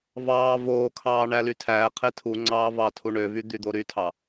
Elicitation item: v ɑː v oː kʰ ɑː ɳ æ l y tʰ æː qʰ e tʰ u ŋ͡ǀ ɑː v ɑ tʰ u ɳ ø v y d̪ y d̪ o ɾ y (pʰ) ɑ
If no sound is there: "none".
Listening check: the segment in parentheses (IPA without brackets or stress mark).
tʰ